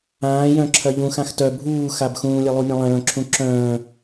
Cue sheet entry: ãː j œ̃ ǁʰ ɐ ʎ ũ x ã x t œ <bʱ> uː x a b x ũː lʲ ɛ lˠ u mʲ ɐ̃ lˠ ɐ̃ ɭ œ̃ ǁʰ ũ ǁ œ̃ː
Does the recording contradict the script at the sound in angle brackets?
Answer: no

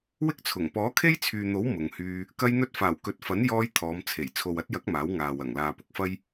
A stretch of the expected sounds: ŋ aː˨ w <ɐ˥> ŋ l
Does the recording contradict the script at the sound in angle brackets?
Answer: yes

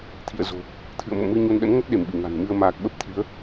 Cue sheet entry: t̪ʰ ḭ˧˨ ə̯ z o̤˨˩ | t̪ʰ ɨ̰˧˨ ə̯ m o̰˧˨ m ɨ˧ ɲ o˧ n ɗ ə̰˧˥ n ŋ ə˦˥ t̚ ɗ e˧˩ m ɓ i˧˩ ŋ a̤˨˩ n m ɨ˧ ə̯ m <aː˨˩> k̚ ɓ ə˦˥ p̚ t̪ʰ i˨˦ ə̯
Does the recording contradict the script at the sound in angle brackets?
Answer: no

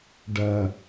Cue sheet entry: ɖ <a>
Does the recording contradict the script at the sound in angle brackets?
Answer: yes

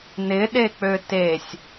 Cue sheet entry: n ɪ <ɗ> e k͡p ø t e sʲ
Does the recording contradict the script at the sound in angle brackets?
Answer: no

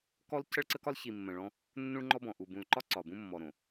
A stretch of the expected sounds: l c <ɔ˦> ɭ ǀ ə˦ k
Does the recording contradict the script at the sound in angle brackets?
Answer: yes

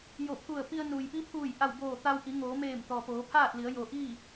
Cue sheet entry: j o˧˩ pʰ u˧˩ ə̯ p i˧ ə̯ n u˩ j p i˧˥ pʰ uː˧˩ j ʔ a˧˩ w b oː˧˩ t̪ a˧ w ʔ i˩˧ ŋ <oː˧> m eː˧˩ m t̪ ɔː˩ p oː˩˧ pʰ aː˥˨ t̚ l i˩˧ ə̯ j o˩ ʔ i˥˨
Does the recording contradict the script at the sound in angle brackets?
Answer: yes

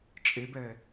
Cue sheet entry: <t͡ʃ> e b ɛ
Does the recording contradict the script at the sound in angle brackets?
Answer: yes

